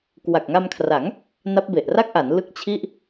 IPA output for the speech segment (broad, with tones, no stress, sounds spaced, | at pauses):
k w a˨˩ k̚ ŋ a˧ m kʰ r a˩˦ ŋ | n a˦˥ p̚ b e˨˩ ʔ r a˥˩ k̚ ʔ a˩˦ n l ɯ˦˥ k̚ t͡ɕʰ i˥˩ ʔ